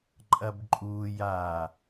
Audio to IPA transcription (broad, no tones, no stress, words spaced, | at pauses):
ǃʼɐbǃʼuːjaː